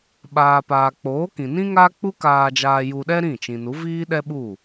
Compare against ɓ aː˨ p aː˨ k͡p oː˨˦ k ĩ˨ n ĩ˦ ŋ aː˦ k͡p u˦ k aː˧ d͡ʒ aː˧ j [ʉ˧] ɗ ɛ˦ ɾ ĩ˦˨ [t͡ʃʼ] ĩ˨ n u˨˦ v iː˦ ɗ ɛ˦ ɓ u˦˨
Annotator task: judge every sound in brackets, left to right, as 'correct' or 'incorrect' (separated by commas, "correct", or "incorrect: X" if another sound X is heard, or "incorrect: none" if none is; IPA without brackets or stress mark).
incorrect: u˧, incorrect: t͡ʃ